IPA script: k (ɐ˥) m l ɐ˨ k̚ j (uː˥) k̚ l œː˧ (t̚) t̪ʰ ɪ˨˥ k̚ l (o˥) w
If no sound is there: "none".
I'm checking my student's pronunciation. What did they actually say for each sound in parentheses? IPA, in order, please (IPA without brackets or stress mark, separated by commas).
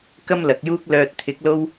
ɐ˥, uː˥, t̚, o˥